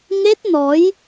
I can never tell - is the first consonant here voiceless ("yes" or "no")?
no